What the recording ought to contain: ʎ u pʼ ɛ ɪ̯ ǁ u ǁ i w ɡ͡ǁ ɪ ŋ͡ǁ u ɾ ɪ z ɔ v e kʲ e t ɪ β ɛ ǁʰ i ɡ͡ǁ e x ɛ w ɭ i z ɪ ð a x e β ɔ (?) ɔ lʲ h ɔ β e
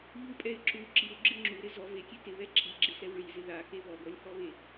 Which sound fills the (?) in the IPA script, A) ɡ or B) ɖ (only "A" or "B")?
A